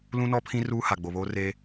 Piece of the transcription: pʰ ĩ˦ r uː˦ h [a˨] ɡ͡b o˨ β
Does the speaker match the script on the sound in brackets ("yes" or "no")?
yes